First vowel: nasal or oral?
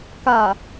oral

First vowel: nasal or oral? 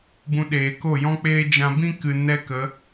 nasal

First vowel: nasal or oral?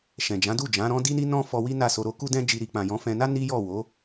nasal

